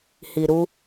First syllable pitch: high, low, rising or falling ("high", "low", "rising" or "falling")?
low